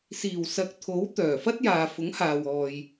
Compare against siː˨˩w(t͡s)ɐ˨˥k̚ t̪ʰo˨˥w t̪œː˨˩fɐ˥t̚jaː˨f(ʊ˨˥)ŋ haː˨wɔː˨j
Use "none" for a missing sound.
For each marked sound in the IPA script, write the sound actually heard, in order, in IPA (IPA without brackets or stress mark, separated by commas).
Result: s, ʊ˨˥